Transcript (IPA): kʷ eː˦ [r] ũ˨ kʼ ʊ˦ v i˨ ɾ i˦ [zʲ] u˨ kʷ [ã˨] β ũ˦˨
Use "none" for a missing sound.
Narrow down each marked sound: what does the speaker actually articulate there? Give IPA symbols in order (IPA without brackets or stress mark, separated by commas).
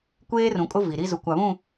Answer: r, z, a˨